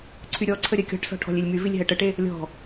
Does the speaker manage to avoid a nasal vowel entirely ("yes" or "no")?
yes